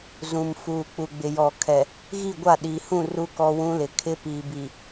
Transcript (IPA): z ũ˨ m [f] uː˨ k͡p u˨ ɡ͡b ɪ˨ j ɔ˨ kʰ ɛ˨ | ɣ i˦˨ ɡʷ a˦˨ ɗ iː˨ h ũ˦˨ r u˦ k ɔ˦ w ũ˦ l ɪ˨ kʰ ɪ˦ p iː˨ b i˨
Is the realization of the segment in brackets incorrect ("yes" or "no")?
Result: no